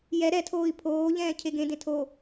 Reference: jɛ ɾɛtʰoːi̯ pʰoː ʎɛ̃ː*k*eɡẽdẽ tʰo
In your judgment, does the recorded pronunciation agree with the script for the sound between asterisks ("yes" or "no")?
no